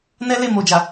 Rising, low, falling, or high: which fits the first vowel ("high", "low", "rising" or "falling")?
high